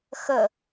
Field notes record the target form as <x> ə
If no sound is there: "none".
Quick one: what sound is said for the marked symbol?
x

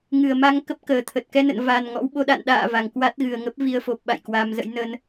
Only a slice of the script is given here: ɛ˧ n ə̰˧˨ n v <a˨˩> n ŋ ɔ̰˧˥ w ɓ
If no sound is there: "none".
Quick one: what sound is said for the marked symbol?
a˨˩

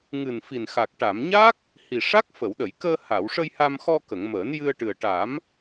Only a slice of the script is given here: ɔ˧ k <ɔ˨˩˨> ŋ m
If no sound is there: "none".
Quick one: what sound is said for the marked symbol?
ə˨˩˨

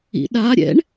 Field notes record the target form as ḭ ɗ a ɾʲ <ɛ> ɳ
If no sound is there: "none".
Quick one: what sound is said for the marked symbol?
ɛ̰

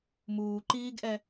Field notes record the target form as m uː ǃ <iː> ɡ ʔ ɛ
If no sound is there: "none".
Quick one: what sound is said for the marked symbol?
iː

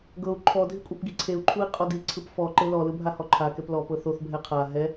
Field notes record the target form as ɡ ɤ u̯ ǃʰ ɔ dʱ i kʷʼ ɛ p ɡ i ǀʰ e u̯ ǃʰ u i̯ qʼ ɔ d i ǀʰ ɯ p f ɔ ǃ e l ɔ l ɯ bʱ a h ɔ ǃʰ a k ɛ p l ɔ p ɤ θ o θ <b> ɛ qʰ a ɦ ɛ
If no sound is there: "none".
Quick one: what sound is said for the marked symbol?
bʱ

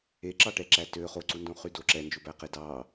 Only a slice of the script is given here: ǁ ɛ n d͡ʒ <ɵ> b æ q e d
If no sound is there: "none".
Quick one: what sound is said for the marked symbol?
ɵ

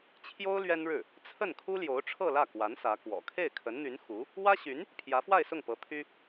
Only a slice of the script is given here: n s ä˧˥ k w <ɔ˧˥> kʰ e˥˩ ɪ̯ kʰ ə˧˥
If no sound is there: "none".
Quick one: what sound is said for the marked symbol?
ɔ̰˨˩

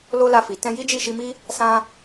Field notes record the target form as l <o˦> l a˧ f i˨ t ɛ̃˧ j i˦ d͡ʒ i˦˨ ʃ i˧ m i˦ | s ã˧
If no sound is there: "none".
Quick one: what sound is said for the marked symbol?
o˦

